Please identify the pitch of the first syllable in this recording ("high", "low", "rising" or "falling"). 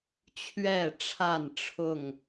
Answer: falling